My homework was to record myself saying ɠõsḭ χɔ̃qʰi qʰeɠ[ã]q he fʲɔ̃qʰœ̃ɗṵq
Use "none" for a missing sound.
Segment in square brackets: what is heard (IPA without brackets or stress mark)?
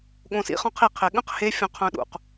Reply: ə̃